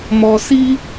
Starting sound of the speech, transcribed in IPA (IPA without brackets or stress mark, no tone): m